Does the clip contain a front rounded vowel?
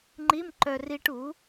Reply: yes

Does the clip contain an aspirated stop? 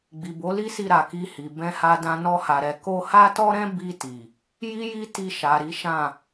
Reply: no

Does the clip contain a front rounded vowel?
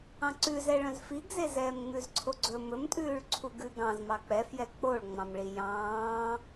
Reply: yes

